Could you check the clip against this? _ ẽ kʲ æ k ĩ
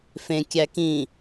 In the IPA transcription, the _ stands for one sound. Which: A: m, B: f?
B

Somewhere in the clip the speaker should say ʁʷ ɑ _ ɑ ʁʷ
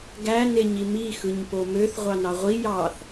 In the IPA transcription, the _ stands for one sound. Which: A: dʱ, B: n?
B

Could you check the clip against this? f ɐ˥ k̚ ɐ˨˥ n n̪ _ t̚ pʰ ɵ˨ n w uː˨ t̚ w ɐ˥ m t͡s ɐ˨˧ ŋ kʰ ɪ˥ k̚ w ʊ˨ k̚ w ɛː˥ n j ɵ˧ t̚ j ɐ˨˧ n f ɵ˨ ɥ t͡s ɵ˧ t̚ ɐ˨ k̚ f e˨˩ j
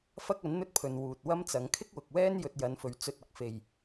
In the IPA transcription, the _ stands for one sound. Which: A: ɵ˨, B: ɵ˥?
B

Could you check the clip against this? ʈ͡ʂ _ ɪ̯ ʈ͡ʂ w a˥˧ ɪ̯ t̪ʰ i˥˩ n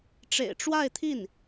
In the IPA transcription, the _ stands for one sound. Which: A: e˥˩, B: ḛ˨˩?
B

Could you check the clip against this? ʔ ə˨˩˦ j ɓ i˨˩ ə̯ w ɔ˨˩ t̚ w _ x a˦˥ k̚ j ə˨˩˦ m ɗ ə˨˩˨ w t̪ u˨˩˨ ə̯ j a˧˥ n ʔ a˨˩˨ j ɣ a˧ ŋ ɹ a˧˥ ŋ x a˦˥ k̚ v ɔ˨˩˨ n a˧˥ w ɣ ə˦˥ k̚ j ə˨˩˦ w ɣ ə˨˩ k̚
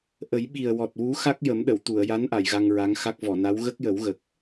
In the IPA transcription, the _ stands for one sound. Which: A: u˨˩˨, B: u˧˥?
B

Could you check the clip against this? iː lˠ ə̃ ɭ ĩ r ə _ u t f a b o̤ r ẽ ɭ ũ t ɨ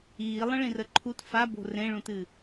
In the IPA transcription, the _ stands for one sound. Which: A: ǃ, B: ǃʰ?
B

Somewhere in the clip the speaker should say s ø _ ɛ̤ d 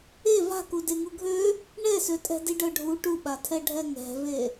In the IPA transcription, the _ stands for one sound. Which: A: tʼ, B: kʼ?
A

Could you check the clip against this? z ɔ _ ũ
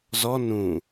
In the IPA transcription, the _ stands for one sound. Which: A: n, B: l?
A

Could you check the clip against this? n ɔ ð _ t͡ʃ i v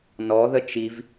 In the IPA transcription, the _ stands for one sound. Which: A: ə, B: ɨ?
A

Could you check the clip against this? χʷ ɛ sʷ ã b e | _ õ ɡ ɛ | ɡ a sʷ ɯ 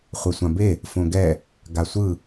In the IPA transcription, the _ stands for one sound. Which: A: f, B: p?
A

